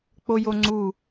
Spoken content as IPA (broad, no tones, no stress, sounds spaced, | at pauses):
k͡p o j o ŋ͡ǀ u